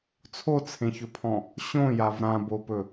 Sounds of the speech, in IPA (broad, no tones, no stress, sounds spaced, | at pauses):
t͡sʰ o t͡sʰ ẽ ç ɵ pʰ ɔ̃ | ɕ õ j a v ɾ ã b o p ɵ